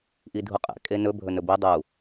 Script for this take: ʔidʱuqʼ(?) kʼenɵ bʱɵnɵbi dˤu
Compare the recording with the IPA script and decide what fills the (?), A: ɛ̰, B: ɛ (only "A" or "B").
A